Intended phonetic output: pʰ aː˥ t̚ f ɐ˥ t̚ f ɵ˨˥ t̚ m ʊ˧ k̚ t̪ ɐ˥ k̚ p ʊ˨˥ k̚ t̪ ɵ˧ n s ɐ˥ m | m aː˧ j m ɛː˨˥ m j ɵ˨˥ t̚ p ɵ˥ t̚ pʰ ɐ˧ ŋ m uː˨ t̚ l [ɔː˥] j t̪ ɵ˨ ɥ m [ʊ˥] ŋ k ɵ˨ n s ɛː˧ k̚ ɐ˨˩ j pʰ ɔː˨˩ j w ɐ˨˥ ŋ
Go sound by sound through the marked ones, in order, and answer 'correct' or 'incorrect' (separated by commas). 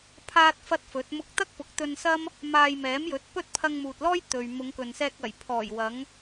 correct, incorrect